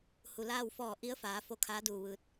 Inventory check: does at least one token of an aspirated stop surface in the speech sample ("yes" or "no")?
yes